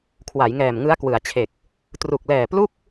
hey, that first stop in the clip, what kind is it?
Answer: aspirated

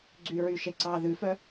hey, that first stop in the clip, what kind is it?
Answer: click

